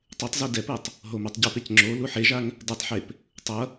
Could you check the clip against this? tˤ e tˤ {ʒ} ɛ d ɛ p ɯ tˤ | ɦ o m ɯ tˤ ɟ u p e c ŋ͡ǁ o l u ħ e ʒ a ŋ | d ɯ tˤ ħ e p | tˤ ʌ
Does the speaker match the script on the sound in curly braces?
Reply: no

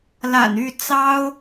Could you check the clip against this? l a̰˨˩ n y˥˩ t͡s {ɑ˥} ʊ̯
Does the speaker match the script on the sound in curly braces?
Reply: yes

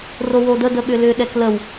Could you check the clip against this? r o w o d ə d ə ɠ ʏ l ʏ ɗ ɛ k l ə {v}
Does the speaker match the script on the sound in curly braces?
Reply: no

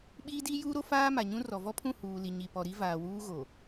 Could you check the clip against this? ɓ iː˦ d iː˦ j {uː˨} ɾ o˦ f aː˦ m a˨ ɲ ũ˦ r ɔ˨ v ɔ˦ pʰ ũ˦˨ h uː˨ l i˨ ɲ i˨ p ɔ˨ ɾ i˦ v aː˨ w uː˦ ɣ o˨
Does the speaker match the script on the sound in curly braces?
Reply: no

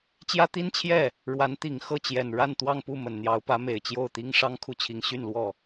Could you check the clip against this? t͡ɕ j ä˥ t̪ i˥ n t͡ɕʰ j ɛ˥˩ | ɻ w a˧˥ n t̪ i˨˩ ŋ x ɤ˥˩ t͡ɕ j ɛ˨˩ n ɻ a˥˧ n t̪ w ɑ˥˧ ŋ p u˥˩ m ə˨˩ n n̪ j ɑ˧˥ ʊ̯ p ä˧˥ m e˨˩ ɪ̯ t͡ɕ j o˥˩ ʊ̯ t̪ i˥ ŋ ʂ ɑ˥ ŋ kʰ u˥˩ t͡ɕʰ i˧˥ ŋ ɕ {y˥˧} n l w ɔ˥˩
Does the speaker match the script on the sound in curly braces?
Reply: yes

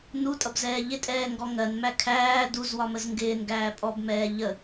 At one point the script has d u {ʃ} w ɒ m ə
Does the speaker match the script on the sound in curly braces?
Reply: no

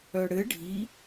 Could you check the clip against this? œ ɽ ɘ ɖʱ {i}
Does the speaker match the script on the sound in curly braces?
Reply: yes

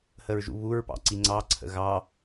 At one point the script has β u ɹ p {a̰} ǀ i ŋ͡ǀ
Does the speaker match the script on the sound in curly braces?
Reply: no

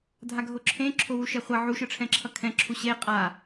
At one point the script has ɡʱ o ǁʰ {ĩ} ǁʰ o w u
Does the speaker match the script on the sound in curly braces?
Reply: no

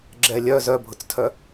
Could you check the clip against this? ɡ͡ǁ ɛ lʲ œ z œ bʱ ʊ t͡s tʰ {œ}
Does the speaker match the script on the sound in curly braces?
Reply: yes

